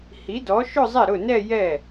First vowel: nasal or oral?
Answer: oral